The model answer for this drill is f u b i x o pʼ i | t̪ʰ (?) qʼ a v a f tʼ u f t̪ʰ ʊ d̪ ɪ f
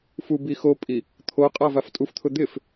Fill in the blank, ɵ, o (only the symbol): o